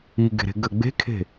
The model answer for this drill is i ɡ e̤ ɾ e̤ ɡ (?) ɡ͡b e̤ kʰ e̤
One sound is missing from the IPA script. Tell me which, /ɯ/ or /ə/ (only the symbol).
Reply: ə